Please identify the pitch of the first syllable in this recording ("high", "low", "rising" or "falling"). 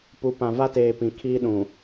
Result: rising